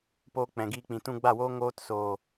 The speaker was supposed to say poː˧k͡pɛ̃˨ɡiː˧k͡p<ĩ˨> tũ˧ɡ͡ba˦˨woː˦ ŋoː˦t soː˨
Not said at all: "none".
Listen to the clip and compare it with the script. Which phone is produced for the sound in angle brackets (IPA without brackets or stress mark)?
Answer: ĩ˨